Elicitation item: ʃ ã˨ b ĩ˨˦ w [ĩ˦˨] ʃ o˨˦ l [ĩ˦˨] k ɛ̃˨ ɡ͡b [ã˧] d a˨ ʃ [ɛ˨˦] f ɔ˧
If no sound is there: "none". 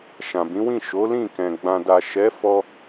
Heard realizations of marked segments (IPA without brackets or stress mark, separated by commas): ĩ˦˨, ĩ˦˨, ã˨, ɛ˨˦